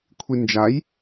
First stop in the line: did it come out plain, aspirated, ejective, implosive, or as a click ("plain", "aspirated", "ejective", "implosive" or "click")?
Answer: aspirated